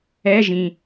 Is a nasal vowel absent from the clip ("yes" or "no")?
no